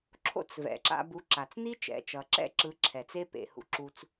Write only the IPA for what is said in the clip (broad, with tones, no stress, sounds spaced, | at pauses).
ǁʰ o̰˦ t͡s v ɛ̰˨ ǁ a̰˧ b u˨˦ ǁ a˨ t͡s n̪ i˦ t͡ʃ ɛ̰˨ t͡ʃ ʌ˨ ǁ ɛ̰˦ ǁ ɯ˨˦ ǁʰ ɛ˨ t͡s e˦ p ḛ˨ h ṵ˧ ǁ u˧ t͡s